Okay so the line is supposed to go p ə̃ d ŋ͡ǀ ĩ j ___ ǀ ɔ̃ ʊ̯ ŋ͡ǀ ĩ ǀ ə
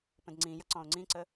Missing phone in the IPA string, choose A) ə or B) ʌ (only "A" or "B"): B